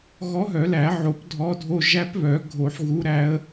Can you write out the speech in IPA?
ɣ ɔ˧˥ ɦ œ˨˩˦ l æ˨˩˦ ʕ o˨˩˦ p dʱ ɔ˧˥ dʱ o˧˥˧ ʒ æ˧˥ p β œ˨˩˦ ɡʱ o˨˩˦ ħ ɣ u˧˥ ɾ æ˧˥ ə̯

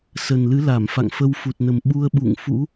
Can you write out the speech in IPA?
s ə˨˩ n l ɨ˨˦ l a˧˩ m f a̰˧˨ ŋ f ə˧ w f u˨˩ t̚ n ə˨˩ m ɓ u˧ ə̯ ɓ ṵ˧˨ ŋ f ṵ˧˥

